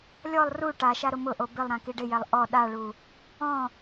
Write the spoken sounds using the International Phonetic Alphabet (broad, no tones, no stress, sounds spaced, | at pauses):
lʲ ɔ lˠ r u ʈ a ʃ a ɾ ʊ m ʊ ʔ o b ɪ lˠ ɾ ã k i ɖ ɪ j ɛ lˠ ʔ ɔ ɗ a ɭ u | ɔ̃